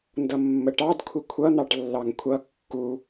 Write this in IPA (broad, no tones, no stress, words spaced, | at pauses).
ndʌmːəʈɑd kʷʰɪkʷʰʌ n̪ɑʈlːɑŋkʷʰʌ kːu